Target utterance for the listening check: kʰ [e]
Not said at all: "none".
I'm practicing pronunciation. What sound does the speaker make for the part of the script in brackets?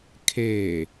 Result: e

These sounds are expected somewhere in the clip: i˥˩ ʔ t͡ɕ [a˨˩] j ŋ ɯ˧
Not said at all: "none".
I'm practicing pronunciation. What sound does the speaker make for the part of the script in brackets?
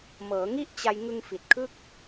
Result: a˧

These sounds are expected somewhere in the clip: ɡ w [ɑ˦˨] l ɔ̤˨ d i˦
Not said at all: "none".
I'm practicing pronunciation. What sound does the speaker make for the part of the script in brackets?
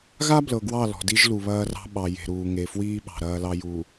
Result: ɑ˦˨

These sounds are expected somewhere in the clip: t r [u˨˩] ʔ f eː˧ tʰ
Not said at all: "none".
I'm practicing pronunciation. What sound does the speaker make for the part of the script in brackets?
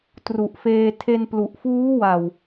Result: u˨˩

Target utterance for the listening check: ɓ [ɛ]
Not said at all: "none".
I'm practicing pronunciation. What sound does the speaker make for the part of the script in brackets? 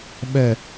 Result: ɛ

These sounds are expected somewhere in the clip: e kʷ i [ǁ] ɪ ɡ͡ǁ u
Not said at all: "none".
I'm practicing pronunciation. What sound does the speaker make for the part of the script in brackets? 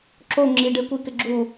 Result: k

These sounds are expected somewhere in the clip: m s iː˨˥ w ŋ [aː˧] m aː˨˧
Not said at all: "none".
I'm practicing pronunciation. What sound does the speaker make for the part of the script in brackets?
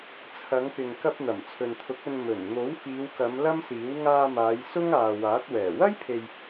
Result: aː˧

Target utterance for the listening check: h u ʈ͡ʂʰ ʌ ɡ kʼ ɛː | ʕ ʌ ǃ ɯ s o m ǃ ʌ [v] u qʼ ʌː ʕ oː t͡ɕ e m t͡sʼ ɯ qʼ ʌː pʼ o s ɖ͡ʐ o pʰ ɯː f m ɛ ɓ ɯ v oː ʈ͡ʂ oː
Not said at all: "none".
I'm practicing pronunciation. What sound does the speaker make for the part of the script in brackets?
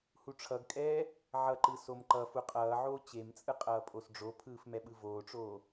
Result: f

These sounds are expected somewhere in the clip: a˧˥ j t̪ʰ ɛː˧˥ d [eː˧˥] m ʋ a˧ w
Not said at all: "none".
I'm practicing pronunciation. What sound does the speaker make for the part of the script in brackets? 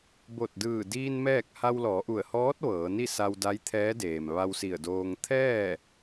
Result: eː˩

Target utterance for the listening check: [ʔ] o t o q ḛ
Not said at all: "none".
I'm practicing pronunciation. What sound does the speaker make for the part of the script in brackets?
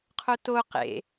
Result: qʰ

